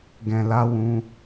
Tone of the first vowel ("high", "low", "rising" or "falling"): low